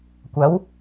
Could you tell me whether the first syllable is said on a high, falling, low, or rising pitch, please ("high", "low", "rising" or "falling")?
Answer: rising